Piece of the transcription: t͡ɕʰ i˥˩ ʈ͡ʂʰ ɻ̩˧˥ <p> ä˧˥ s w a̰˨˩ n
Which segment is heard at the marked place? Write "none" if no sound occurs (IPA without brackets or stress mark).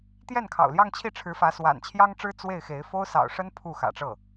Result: f